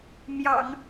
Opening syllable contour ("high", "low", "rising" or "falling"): low